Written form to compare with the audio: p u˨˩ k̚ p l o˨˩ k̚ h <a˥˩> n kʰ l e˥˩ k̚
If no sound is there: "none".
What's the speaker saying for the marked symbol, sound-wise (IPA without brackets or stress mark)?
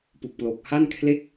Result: a˥˩